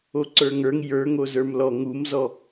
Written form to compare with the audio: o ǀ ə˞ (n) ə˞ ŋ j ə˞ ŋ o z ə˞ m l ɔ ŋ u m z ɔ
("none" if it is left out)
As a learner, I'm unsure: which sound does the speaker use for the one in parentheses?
ŋ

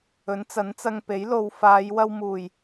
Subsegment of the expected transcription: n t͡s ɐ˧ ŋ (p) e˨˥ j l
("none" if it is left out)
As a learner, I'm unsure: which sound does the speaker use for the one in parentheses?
p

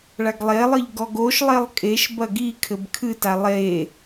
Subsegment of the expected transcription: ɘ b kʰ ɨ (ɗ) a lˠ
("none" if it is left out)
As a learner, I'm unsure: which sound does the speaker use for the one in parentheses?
t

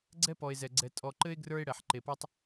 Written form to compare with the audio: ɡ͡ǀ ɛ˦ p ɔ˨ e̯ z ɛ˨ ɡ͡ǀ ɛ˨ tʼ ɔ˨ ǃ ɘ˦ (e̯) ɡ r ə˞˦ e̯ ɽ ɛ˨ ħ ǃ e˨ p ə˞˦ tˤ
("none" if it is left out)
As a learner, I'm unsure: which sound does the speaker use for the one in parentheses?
e̯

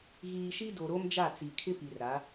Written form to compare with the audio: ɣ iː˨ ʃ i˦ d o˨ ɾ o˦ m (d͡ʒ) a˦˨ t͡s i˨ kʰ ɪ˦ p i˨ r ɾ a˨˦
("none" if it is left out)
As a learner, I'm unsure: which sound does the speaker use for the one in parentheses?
d͡ʒ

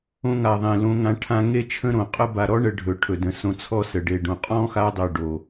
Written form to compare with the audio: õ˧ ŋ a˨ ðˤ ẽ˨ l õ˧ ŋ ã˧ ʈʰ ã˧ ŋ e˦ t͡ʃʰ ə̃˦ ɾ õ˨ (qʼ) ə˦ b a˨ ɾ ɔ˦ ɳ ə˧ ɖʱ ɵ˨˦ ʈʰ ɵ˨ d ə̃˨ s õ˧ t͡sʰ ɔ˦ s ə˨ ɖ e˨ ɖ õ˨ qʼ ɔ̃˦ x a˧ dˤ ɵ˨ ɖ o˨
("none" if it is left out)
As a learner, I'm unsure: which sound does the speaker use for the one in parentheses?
qʼ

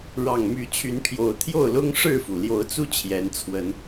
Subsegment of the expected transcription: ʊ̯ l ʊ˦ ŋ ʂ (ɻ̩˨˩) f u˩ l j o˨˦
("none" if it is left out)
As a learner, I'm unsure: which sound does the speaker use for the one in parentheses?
ɻ̩˥˨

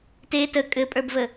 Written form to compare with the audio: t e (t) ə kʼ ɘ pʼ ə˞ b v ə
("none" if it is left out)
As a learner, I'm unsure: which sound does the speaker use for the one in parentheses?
t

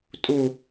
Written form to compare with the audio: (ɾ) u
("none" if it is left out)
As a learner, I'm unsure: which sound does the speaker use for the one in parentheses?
tʼ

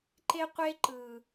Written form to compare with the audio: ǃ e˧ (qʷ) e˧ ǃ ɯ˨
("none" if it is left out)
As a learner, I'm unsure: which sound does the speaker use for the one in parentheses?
qʷ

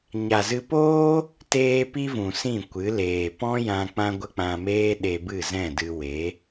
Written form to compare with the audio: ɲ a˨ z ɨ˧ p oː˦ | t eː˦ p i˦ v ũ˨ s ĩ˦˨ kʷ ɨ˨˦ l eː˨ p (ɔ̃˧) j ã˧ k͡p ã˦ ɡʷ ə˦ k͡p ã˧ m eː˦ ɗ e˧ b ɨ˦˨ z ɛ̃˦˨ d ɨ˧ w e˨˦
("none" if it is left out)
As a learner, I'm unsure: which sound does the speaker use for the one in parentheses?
ɔ̃˦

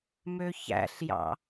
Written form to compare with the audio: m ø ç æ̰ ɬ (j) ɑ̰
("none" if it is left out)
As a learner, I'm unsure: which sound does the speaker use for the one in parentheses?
j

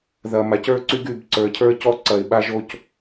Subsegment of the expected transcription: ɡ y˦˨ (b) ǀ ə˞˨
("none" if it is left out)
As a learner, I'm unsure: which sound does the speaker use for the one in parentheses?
b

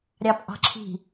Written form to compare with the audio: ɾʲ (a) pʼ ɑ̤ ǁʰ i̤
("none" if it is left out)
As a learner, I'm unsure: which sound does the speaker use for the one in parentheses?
ɑ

